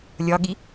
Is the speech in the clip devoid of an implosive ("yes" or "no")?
no